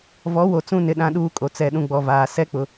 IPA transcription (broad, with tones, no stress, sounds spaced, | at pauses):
v ɔ˨˦ w o˨ t͡s ũ˦ n ɪ˨ ɗ ã˦ ɗ uː˦ kʼ o˨ t͡s ɛ˦˨ ɗ ũ˦ ɡ͡b ɔ˨ v aː˨ s ɛ˦ k͡p ʊ˨